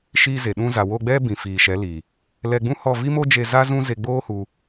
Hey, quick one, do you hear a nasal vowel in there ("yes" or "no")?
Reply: yes